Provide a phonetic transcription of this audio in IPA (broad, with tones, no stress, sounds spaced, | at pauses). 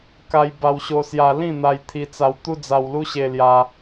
k a˧ j b a˧ w ɕ o˧ s j a˧ l ĩ˥˧ n̪ a˧ j t̪ʰ i˧ t͡s a˧ w t̪ u˦ d͡z a˧ w l u˦ ɕ e˧ l j a˧